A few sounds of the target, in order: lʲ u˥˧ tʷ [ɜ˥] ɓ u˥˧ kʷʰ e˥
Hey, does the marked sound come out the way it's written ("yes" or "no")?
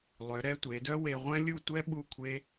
no